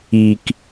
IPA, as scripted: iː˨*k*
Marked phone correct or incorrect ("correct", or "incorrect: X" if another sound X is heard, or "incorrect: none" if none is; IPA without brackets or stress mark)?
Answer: correct